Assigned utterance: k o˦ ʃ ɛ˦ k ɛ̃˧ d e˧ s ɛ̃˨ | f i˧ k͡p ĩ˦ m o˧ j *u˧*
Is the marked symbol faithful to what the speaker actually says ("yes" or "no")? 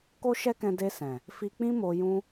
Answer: no